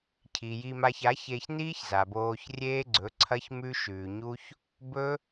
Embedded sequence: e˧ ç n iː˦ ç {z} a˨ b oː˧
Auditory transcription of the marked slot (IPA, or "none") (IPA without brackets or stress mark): z